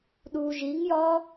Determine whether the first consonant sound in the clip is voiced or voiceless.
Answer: voiced